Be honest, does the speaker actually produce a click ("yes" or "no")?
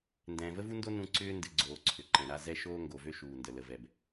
yes